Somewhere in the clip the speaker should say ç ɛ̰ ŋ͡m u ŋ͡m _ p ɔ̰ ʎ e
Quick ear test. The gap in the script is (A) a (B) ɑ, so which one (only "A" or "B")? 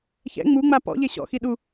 A